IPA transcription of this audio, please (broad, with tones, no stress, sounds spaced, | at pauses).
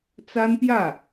t͡s a˥ n p j ä˥˩